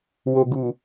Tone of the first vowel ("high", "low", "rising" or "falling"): low